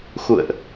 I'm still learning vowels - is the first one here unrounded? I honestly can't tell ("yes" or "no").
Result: no